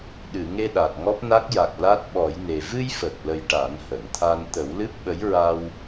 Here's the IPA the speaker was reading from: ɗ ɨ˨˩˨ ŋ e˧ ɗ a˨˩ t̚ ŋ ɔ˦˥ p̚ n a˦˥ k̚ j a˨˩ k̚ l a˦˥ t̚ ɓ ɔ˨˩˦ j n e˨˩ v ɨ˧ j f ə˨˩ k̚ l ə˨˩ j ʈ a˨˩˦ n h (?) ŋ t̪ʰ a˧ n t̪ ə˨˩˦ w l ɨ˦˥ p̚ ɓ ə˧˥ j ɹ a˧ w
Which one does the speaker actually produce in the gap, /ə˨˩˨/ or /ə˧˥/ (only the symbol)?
ə˨˩˨